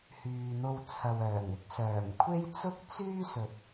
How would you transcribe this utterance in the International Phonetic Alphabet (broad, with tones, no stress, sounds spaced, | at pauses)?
h yː˨ n̪ o˧ w t͡sʰ ɐ˨ w œː˨˩ ŋ ɪ˥ k̚ s œː˨˩ m kʷʰ e˥ j t͡s ʊ˥ k̚ t͡s yː˥ s ɵ˨ t̚